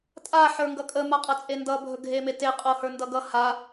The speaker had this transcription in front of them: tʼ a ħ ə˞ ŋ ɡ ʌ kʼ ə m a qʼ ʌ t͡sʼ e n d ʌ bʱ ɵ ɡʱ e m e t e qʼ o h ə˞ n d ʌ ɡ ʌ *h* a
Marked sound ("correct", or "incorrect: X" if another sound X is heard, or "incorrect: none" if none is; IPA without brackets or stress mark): correct